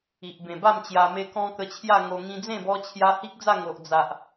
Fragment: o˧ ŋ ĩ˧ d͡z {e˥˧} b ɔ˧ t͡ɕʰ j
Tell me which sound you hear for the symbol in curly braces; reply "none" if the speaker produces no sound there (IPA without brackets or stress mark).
ẽ˥˧